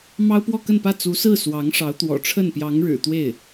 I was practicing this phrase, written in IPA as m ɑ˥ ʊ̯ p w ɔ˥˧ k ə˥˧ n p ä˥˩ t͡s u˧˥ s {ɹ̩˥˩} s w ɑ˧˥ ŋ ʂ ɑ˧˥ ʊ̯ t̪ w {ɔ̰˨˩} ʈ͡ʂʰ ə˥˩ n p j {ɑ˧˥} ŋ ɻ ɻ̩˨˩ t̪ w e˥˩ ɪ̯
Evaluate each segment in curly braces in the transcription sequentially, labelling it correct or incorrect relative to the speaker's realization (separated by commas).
correct, correct, correct